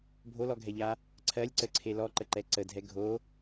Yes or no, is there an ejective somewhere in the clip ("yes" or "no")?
no